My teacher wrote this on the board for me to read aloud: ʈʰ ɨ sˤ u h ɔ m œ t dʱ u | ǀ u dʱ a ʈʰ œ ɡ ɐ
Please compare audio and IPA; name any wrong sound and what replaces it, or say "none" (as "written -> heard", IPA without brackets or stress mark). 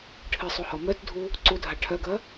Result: none